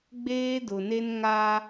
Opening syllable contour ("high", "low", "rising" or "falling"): high